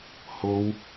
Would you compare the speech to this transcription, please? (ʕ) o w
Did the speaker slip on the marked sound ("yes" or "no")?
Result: yes